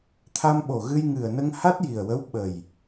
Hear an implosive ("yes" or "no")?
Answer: yes